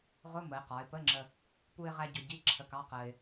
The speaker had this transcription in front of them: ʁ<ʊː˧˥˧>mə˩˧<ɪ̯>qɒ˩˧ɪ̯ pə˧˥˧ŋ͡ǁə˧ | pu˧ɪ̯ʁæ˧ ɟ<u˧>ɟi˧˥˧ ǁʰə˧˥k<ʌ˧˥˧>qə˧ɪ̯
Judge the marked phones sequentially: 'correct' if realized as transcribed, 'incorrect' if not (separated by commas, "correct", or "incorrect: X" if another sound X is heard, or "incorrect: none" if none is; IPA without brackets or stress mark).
incorrect: ʊ˧˥˧, correct, incorrect: ʊ˧, incorrect: ɑ˧˥˧